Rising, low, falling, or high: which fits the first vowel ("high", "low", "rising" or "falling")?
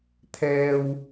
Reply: low